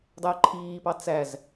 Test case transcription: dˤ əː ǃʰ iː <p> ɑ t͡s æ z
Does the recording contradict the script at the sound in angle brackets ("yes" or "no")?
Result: no